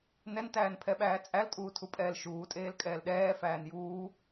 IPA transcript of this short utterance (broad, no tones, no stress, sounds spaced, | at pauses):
n ɛ n t æː n pʰ ɛ ɓ æː t͡sʼ æ l tʼ uː tʰ u pʼ ɛː l ʃ uː tʼ eː l kʼ ɛː l ɗ ɛː f æː n j uː